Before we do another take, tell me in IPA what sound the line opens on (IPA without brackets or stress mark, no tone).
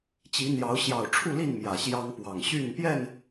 t͡ɕ